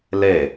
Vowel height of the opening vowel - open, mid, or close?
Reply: mid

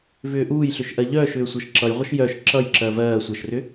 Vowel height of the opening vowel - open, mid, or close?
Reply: close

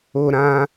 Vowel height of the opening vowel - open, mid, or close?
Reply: mid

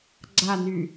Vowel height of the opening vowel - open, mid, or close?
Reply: open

